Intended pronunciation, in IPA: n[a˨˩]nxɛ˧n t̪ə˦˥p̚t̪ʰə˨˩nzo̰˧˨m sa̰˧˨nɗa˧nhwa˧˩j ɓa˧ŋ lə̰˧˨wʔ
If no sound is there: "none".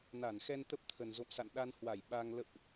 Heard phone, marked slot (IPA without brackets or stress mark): a˧˩